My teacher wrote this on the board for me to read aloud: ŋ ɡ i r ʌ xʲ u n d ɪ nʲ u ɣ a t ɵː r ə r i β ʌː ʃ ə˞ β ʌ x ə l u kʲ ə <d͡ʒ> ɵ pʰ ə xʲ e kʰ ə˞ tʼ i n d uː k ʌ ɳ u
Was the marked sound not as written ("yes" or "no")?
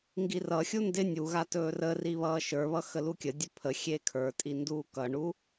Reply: yes